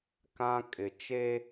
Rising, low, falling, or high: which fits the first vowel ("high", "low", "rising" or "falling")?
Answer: high